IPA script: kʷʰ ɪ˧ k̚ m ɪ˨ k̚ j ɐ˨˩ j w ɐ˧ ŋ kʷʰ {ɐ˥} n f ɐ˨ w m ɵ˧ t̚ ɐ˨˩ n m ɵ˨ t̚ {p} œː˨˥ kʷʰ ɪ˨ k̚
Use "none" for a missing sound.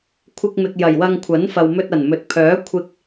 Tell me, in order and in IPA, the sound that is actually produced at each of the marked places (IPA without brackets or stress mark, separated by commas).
ɐ˨˥, pʰ